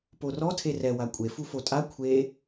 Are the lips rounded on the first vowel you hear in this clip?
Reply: yes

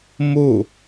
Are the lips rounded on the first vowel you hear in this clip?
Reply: yes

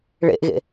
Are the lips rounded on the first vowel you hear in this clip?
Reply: no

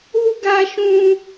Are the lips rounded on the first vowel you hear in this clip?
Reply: yes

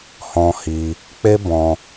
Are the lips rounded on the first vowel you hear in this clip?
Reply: yes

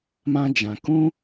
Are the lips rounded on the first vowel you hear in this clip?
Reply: no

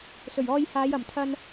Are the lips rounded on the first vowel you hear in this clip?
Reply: yes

